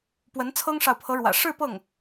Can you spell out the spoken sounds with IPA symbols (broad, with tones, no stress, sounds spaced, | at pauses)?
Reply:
p w ə˧˥ n t͡sʰ ɤ˥ ŋ ʂ ɑ˨ ʊ̯ pʰ ɤ˧˥ ɻ w ä̰˨˩ ʂ ɻ̩˥˧ p ɤ˥˩ ŋ